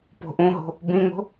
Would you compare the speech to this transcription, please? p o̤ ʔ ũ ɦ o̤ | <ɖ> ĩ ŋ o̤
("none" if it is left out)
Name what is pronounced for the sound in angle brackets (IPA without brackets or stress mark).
b